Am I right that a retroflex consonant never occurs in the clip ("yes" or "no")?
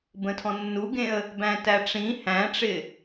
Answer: no